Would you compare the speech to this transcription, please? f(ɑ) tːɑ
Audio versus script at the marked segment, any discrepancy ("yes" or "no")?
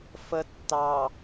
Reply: yes